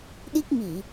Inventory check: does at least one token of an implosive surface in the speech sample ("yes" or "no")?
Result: yes